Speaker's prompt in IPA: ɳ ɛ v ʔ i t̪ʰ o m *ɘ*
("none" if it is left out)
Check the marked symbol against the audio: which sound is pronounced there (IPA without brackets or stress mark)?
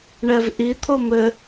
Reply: ɘ